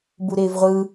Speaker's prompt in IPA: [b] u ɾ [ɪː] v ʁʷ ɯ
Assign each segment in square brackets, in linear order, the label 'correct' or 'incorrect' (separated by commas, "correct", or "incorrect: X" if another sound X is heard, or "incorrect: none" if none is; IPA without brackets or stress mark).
correct, correct